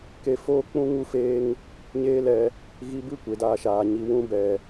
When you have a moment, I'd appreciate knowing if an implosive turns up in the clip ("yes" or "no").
no